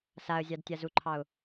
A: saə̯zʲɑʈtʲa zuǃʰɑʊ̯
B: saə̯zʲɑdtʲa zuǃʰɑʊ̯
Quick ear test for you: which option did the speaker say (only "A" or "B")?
B